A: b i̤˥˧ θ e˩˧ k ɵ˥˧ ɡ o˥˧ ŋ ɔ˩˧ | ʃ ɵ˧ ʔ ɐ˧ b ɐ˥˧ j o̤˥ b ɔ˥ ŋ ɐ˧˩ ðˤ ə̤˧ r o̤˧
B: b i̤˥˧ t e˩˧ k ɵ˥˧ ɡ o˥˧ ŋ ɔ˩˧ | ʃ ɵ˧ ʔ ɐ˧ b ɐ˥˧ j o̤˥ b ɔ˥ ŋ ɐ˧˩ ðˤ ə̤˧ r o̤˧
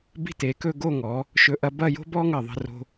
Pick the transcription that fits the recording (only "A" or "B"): B